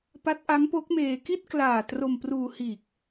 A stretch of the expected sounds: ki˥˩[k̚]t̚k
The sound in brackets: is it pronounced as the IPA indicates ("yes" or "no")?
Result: no